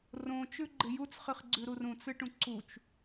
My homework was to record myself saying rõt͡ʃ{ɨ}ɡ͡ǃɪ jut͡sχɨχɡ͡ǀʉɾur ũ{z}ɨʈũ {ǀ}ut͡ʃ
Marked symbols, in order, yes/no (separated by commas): no, no, yes